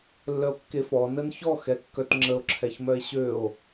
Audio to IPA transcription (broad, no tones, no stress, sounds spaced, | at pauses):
lː œ o̯ kː e f ɔ n ə n ç ɔ x ɛ kː œ t ŋ͡ǁ ə o̯ ǁʰ ɛ ç m œ e̯ ɕ ø o̯